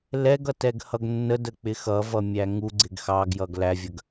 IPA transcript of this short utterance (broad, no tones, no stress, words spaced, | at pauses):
lɛɡʌ tɛɡhʌɡnːədə k͡pɪxʌvʌ mʲæŋuɡ͡ǀɪɡ xɑɡjʌɡ lævʲəɡ